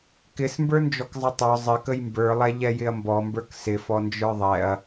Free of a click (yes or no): yes